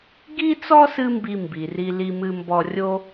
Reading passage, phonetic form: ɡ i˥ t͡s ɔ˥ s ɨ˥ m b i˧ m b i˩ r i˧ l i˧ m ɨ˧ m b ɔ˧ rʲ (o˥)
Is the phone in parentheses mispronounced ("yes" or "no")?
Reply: no